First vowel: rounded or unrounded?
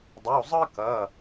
rounded